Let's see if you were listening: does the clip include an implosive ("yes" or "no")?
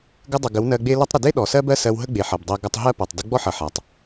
yes